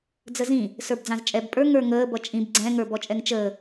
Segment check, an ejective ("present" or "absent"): present